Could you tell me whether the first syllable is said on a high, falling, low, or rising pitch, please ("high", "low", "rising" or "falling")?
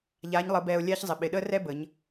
rising